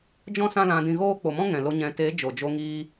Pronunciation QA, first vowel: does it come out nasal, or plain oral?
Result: nasal